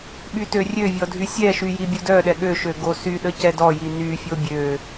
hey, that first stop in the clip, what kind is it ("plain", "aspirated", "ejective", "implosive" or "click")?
implosive